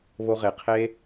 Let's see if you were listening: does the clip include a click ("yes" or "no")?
no